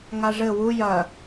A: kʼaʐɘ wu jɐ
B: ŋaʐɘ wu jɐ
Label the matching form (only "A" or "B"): B